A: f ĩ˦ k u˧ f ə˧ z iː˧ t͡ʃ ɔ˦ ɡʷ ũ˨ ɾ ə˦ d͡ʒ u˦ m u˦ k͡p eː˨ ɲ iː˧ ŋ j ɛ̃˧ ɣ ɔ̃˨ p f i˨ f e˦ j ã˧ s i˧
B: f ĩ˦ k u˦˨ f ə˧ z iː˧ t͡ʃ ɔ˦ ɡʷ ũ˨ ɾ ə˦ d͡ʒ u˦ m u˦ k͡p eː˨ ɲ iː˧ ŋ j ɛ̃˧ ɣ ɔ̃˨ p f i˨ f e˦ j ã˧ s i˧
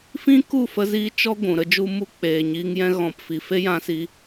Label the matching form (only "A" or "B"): B